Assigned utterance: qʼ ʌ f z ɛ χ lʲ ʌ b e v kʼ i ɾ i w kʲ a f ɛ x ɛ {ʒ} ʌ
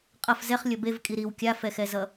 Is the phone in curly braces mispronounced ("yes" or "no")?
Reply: yes